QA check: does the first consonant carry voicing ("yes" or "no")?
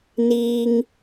yes